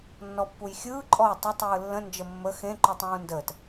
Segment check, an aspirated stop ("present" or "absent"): absent